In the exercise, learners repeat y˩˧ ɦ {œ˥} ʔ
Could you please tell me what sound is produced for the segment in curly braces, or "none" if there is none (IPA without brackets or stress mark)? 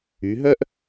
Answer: œ˥